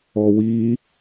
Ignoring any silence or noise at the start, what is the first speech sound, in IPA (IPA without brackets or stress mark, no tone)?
ɔ